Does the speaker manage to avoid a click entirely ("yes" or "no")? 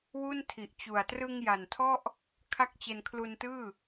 yes